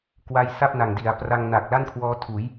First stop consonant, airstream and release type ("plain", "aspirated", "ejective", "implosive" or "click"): plain